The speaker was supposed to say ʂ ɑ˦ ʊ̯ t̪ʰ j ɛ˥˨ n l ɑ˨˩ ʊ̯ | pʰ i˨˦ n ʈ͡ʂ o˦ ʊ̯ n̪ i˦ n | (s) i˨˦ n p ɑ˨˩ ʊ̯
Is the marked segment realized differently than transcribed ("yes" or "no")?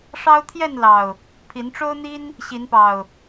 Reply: yes